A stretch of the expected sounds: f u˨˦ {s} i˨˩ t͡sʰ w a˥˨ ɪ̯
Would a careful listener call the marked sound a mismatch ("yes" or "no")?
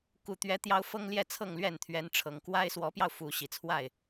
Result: yes